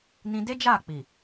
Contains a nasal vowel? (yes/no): yes